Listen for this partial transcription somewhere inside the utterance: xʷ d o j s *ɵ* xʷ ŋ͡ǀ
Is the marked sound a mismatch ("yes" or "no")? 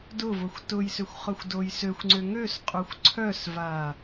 yes